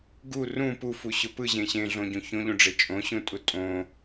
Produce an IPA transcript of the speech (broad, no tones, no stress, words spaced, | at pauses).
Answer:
ɡu rũ pufuɕʊ pɯʑẽ ɕẽɮõɟõ çõʎũɖ͡ʐe t͡ʃʼõɕũtʼu tʼõ